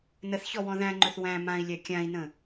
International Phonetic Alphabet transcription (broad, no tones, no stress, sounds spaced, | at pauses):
n ə θ ç ɔ w ɔ̃ ð æ̃ ŋ͡ǃ ɵ θ w æ̃ m ã i̯ lʲ æ kʲ ã i̯ n ə̃